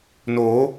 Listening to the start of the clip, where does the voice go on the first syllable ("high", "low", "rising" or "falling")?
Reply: rising